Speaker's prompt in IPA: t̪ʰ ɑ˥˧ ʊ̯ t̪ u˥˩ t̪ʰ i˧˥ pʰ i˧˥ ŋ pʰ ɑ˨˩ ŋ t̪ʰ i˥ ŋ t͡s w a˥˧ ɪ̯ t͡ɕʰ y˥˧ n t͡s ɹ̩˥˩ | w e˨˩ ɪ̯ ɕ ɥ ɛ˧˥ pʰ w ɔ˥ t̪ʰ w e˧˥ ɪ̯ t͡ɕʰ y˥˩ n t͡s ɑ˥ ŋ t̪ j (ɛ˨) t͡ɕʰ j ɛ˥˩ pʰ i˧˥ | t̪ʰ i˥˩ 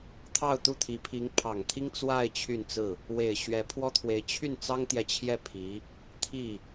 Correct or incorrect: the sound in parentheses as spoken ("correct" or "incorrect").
correct